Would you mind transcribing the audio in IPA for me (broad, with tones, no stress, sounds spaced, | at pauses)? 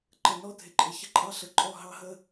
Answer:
ǃ ə˨ n ɔ˦ dʱ ɪ˨ ǃʼ ɪ˨ ç ə˦ ǃʼ ɑ˦ ɬ ə˨ ǃʼ ɔ˦˨ ɦ ɑ˦ ɦ ə˦